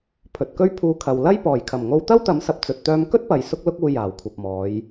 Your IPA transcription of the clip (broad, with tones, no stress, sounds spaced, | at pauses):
pʰ ɵ˨ t̚ k ɵ˥ ɥ pʰ uː˧ kʰ ɐ˨ w l ɐ˥ j p ɔː˨˩ j kʰ ɐ˨˩ m ŋ o˧ w t̪ ɐ˥ w t̪ ɐ˨˥ m s ɐ˨ p̚ t͡s ɵ˧ t̚ t̪ œː˥ m k ɵ˥ t̚ p ɐ˨ j s ʊ˥ k̚ l ʊ˥ k̚ uː˧ j aː˨˩ w kʷʰ ɐ˨ p̚ m ɔː˨˧ j